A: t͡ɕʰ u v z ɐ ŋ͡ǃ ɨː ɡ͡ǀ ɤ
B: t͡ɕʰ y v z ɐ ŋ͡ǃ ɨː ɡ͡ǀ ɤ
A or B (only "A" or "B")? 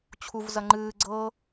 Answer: A